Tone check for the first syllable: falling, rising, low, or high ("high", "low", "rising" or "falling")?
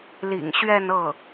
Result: low